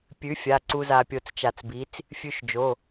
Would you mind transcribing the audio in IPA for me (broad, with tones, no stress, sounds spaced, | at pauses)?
pʲ ʉ˨˥ fʲ a˩˧˩ ǀ u˧ z a˧ pʲ o˧ t͡s t͡ʃ a˧˩ t͡s b i˨˥ t͡s | fʲ ʉ˧ ʃ d͡ʒ o˩˧˩